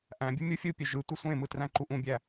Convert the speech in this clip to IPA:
ʔ æ̃ bʲ ɯ mʲ u fʲ ɯ pʲ e ʒ ɯ tʷ ɯ sʷ ẽ m ɯ t r æ̃ ǃ u ʔ ũ bʲ æ

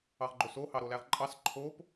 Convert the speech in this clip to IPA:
ɑ ʁ ɡ͡ǃ o s o h ɑ ɾ o l æ ʁ ǃʼ ɑ s ǃʰ o p

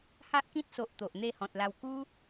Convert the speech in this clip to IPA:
h a˦ ʔ k ĩ˦ t̚ s o˨ ʔ t̪ o˨ ʔ n̪ e˥˧ h ɔ̃˨ t̚ l a˧ w k u˦

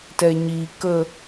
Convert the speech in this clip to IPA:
t ɛ ɲ i k ə

